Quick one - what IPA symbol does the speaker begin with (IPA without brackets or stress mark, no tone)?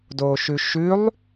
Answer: d